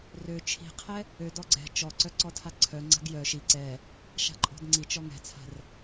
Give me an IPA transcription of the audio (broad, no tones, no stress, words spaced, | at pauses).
rø t͡ʃʰi̤qʰɛ | ødɔ ɡ͡ǀɛ̤ t͡ʃɔǀœ ǀɔtʰaǀʰœŋ͡ǀa̤ɡ jœ ʃi ǀɛ | ʃa̤ǃʼɔ̤dŋ͡ǀit͡ʃɔ ŋɛ̤t͡sʰa̤r